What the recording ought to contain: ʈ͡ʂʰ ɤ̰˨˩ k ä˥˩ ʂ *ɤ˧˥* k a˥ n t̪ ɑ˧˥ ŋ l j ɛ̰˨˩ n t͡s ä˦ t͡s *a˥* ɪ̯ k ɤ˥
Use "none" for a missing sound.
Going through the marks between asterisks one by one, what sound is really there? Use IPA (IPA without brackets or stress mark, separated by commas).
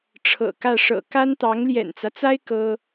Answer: ɤ̰˨˩, a˥